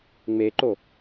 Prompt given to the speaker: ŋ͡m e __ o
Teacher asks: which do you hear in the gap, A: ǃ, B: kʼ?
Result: A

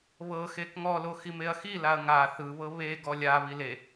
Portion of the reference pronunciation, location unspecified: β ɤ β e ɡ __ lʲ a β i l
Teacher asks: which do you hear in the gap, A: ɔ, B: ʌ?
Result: A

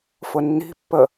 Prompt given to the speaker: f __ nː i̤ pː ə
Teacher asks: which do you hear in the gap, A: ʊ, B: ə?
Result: A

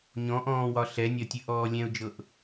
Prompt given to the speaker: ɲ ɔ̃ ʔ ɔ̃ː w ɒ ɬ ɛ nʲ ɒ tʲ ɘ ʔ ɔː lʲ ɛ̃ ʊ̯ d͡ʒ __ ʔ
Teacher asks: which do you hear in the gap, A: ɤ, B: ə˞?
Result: A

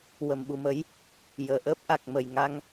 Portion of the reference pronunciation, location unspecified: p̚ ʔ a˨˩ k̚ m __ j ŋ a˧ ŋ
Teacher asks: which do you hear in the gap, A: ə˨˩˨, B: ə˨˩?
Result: B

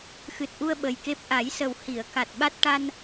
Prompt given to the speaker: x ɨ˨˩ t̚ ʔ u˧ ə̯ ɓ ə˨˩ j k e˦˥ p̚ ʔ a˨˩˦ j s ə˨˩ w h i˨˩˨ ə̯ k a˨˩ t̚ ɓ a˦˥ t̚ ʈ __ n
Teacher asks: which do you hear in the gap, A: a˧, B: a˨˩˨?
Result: A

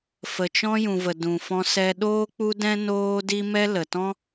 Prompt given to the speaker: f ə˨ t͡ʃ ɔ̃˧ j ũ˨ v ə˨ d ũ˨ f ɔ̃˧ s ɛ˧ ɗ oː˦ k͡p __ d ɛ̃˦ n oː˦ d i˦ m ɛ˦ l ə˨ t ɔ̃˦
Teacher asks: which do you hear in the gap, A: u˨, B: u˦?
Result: B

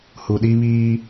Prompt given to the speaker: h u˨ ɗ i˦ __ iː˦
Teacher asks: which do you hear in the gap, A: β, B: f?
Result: A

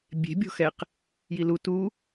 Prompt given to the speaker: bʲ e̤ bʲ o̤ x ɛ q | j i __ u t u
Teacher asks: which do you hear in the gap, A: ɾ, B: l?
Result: B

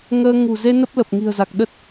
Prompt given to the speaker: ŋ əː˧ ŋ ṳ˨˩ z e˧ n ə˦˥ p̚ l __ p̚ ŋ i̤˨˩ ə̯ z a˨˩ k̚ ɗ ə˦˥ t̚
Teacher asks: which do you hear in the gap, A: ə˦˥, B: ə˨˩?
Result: B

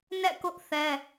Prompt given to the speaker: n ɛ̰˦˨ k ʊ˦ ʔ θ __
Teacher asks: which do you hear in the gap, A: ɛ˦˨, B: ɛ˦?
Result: B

